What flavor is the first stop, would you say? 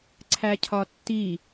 click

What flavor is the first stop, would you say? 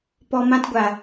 plain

